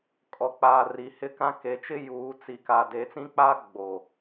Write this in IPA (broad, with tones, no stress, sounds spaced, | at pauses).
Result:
kʼ ɔ˨ k͡p aː˨ r i˨ h ɪ˦ k ã˦ k e˨ t͡ʃ ɪ˦ j uː˨˦ t͡s i˨ k aː˨ d eː˨ t͡s ĩ˦ k͡p aː˦ ɡ͡b o˨